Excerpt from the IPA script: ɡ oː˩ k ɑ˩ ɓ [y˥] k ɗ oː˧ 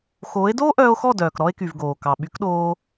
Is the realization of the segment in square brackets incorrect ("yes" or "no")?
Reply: yes